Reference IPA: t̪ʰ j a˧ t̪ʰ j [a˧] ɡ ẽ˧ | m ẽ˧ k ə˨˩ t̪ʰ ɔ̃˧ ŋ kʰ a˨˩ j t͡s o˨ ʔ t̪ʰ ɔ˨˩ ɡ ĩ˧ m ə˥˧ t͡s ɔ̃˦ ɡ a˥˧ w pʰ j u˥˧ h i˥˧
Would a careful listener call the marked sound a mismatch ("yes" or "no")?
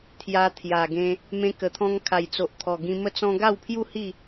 yes